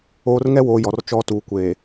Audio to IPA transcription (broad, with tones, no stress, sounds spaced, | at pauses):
oː˨ r ŋ ɛ˦ w oː˨ j ɔ˨ r t͡ʃ ɔ˦ t uː˨ kʷ eː˨